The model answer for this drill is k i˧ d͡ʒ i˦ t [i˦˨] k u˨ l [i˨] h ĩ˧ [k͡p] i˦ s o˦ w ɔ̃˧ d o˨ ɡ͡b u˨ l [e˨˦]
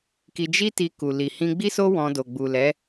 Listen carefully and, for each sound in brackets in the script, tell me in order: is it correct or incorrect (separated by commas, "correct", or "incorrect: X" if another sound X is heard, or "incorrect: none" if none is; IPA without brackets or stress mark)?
incorrect: i˧, correct, incorrect: ɡ͡b, incorrect: ɛ˨˦